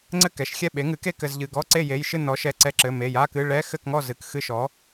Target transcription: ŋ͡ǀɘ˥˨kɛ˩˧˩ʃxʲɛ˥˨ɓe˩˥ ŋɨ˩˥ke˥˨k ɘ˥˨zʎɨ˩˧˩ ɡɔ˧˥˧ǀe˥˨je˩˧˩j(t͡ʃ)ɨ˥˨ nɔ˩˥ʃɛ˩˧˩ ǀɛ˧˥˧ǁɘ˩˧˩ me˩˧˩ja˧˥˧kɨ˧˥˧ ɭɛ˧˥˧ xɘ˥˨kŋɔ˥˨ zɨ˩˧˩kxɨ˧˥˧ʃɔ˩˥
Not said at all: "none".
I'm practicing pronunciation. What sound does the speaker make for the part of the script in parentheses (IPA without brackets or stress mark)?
ʃ